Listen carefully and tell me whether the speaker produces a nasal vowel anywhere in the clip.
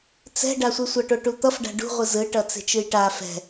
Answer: no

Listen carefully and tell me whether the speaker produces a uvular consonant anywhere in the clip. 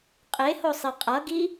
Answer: yes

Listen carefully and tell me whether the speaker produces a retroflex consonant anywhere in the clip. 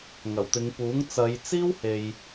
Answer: no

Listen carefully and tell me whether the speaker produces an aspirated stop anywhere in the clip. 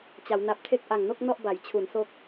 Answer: yes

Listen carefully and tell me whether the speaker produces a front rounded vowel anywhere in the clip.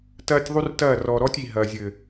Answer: no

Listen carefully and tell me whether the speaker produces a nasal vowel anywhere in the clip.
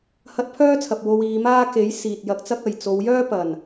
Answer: no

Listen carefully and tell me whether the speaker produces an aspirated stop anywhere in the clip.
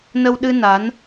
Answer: no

